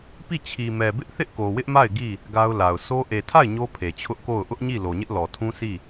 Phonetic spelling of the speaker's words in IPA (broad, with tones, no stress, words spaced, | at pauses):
pi˦˨t͡ɕʰi˨mɛ˨ bɪ˦ʔ θɪ˦ʔko˨wɪ˦ʔma˦˨ɪ̯ ɡi˦˨ | ɡa˦ʊ̯la˨ʊ̯ so˦ ʔe˨tʰa˦˨ɪ̯ ɲo˦pʰe˨t͡ɕʰʊ˦ʔ ko˦˨ʊ̯ ʔʊ˦ʔɲi˦˨ lo˨ɲɪ˦ʔlɔ˨ tʰũ˦sʰi˦˨